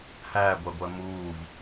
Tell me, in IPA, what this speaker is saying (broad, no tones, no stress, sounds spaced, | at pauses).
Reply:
h æː ɡʷ ɜ ɡʷ ɜ m uː v